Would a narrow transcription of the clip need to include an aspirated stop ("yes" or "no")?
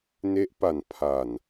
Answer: yes